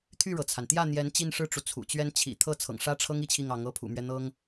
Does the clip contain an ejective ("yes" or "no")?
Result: no